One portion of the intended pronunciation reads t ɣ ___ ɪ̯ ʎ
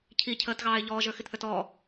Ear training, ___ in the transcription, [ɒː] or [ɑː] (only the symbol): ɑː